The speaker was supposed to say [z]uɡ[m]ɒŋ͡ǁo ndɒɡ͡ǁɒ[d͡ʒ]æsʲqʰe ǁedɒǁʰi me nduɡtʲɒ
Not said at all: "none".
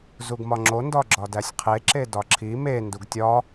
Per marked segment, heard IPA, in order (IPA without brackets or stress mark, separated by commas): z, m, d